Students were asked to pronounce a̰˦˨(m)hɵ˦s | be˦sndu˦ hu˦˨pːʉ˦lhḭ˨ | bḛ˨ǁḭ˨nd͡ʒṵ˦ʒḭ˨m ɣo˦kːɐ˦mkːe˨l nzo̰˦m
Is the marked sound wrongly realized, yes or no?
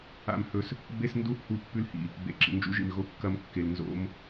no